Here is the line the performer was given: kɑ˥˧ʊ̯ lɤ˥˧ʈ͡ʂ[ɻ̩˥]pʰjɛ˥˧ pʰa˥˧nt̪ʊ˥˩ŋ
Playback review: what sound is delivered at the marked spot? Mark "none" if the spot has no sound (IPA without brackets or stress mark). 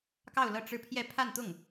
ɻ̩˥˧